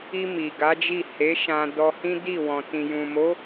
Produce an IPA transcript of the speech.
i˧ mi˨ɡa˨˦d͡ʒi˦˨ he˨˦ʃã˧dɔ˧hĩ˦ di˦˨wɔ̃˨ tĩ˨jũ˨mo˨˦

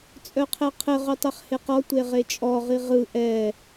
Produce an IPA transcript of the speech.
t͡sʼœqʰɛqʰɘ ʁotˤɛχheqɔ tʷeʁet͡ʃʼɔ ʁiʁɯ ʔɛ

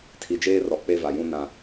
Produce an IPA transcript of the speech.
tʰi˨d͡ʒeː˦rɔ˨ k͡pe˦va˨jũ˦ nã˦

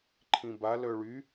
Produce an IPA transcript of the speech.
ǃʰĩba lœɭy

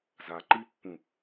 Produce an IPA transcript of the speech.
za ǃi pːũ

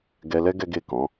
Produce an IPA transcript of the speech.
ɡɛ˧lɛ˦ ɡɛ˦ɡe˦˨kɔ̃˨˦

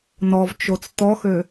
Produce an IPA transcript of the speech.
nɔvt͡ʃot͡s t̪ɔxø

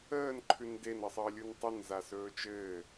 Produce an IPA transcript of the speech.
əːn ǃʰʉnden əsˤəːlʲuntˤɵn zasɵːt͡ʃɘː

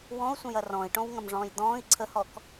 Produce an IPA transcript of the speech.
wɔ̃u̯sʷə̃jɐ rɔ̃i̯ʈõwŋɐ̃mʐɔ̃ːj d̪ɔ̃ːi̯ ǀʰəhɔk

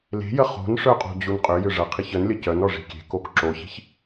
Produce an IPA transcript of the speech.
le̤jə χo̤nʂœqʼo̤d͡ʑun qʼʏjʏ ʐɐqʰiç ənlʲə cœnɔʐi̤ kʲe̤kok ǁoçi̤ç

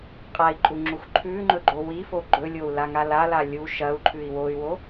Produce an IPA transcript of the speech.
qʼai̯ǃʼuŋ͡ǁux ǃʰʉŋ͡ǃɵɡ͡ǃo wifo ɡ͡ǃɵlʲou̯laŋal ala lʲu ʃɐu̯ǃʰʉi̯ woy̯wo

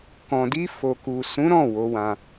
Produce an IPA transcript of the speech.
kɔ̃˨di˧ fo˨ku˨ sũ˨˦ɾɔ̃˦˨ wo˨˦wã˧

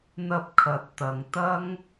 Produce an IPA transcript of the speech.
n̪ɐ˧p̚kʰɐ˨t̚t̪ɐ˨ŋ t̪ɐ˥ŋ

